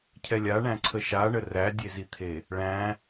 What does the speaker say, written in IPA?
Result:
cʰ ɛ lʲ a ɳ æ̃ ǀʰ ə ʃ a ɳ ə r æ dʲ e z i t̪ʰ e | ɭ æ̃

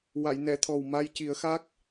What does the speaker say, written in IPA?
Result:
w a˨˩˨ j n ɛ˨˩˨ t̪ʰ ɔ˨˩ w m a˧ j c i˨˩˦ ə̯ x a˦˥ k̚

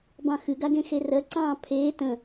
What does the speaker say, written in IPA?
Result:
b ɑ̃ x ɨ ɡ a ɡ ẽ x e r ɜ ǀ ɑ̃ː pʰ eː t ə̃

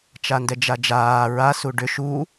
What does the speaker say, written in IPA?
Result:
t͡ʃ a n d ɛ d͡ʒ a d͡ʒ aː ɹ a s u ɖ ʏ ʃ u

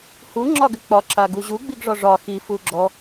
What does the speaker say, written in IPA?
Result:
h u ŋ͡ǁ ɒ ɡ ʏ k͡p ɒ ǁ a ɡ u ʑ u ɡ͡b i ɡ ʐ ɒ ʐ ɒ x i f u ɡ͡ǁ ɔ

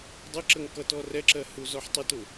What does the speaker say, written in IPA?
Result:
dˤ ə ǁ ə ŋ k ʌ t ɔ r ɛ ǁ ɜ h u z ɔ ħ tˤ ɪ t ʊ

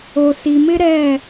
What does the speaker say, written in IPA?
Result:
o˨ s i˨ m ɪ˦ ɾ ɛ˦˨

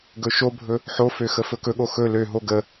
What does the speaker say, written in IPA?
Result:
ɡ ɵ ʃ o bʱ ɵ | ħ o f ø x ə f ɵ k ɵ ɠ o x ɵ l ø ɦ o ɡ ə

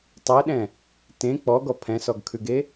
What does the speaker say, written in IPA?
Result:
tˤ e ɗ ɛ̃ | t ẽ k͡p ɔ ɡ ɔ pʰ ɛ̃ s ɔ ɡ kʰ ʉ ɡ e

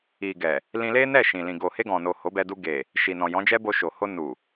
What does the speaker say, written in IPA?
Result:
i˨ ɡ ɛ˨ | l ĩ˧ l e˦ n ɛ˦˨ ʃ ĩ˨ l ĩ˨ ɡ o˨ h e˧ ɡ ɔ̃˨ n o˨ h o˨˦ b ɛ˧ d u˧ ɡ e˨ | ʃ i˨ n ɔ̃˨ j ɔ̃˨˦ d͡ʒ ɛ˦ b o˧ ʃ o˨ h o˧ n u˨

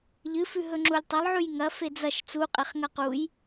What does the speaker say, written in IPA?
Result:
ʎ ɨ f ʉ ɦ ɵ ŋ͡ǁ u lʲ tˤ ɐ lˠ ʕ ʉ j ŋ ɐ f e d͡z ɐ ʃ t͡s u qʼ e χ ŋ ɐ q u j

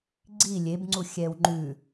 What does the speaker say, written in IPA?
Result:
ɡ͡ǀ i lʲ e b ŋ͡ǀ u xʲ ɛ w ŋ͡ǃ ʉ

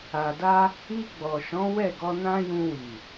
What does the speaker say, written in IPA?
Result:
a˨ d a˧ | i˧ ɡ͡b ɔ˨ ʃ ɔ̃˨˦ w ɛ˦˨ ɡ ɔ˧ n ã˦ j ũ˧ w i˨

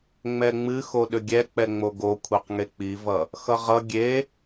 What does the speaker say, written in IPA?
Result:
ŋ͡m ɛ ŋ͡m ɨ x o ɗ ʏ ɡʲ ɛ k͡p ɛ ŋ͡m o ɡ o kʷʰ e q ŋ e k͡p i v ʌ | x ʌ ʁ ʌ ɡʲ e

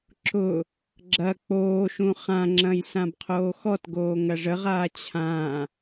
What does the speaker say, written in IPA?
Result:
ǁ ʊ | ɡ͡ǁ ɐ k͡p oː ʃ ũ χ ã ŋ͡ǁ ɐ̃ j s ã b qʰ oː x ɔ t ɡ oː ŋ ɐ ʐ ə ʁ aː t͡ɕʰ ã

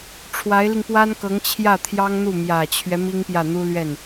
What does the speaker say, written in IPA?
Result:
ʈ͡ʂʰ w a˧˥ ɪ̯ l i˧ ŋ p w a˥ n k ɤ˧˥ ŋ t͡ɕʰ j ä˥˩ t̪ʰ j ɑ˥ ŋ n̪ u˥˩ m j ä˨˩ t͡ɕʰ ɥ ɛ˦ m i˥ ŋ p j ä˥˩ n̪ u˥ l ɥ ɛ˥˩ n

